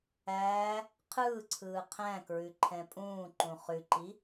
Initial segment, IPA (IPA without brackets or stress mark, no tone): æː